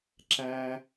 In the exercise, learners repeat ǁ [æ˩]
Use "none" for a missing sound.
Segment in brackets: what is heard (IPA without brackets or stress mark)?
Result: æ˥